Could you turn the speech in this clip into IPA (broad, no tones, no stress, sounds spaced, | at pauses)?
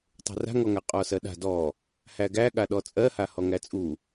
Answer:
tˤ ṳ r a̤ ŋ ɔ ŋ a qʼ ɔ s ɜ ɗ a̤ d ɔ | h æ ɡ æ ɠ a ɗ ɔ t͡sʼ ɜ h a h ɔ ŋ æ t͡sʼ u